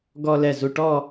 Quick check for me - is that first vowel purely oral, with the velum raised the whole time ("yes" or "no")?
yes